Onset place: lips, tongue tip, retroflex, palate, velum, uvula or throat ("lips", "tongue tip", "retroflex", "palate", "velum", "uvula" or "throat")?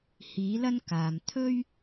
throat